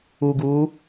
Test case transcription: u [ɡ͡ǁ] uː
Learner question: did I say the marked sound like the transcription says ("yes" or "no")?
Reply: no